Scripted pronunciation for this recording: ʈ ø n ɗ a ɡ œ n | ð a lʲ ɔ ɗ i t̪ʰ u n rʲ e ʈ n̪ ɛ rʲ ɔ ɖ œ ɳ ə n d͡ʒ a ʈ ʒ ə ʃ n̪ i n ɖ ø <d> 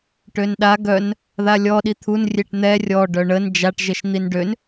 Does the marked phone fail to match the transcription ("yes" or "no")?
yes